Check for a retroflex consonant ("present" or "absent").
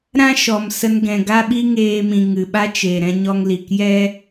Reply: absent